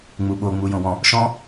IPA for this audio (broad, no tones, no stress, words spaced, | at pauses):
ŋ͡muɓo ŋ͡mujõwɔ̃ | ʃɔ̃